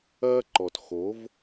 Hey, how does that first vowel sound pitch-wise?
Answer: high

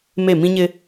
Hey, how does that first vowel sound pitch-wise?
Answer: falling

